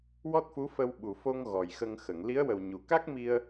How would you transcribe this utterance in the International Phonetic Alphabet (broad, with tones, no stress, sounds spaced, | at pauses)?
w ɔ˦˥ t̚ f u˧˥ f ə˧ w ɓ u˨˩ f o˧ ŋ ɣ ɔ˨˩ j x ə˧ ŋ x ə˨˩˨ ŋ l i˧˥ ə̯ w ə˨˩ w ɲ u˨˩ k a˦˥ k̚ m i˧ ə̯